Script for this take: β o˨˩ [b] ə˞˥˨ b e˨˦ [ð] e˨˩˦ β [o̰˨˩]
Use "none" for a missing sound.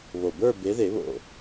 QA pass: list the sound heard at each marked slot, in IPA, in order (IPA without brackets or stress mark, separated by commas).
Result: b, ð, o̰˨˩